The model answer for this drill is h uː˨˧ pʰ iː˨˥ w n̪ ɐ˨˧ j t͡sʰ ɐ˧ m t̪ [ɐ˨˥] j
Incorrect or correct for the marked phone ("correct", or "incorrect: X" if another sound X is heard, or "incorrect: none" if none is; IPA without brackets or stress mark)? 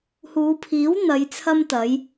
incorrect: ɐ˨˧